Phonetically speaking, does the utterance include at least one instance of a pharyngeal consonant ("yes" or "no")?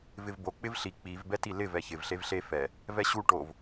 no